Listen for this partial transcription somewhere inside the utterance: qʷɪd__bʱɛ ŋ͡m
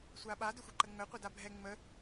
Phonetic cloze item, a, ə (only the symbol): a